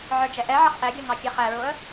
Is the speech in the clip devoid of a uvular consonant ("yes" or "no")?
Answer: no